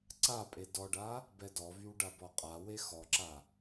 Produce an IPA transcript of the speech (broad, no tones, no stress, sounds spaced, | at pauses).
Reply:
ǀ a pʼ e d ɔ ɖ a | b ɛ d ɔ v y w ɖ a b ɔ qʼ a w e x ɔ ǁ a